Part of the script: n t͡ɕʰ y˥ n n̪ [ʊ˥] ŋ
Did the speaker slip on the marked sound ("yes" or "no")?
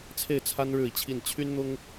no